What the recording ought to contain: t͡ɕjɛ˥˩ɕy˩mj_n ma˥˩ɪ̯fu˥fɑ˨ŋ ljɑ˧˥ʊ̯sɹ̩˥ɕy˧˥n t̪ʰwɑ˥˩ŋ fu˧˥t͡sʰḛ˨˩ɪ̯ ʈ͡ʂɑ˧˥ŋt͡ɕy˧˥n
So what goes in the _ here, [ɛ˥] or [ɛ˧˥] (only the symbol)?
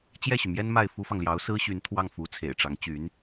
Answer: ɛ˥